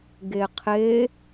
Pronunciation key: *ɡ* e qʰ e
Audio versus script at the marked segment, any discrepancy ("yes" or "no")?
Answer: no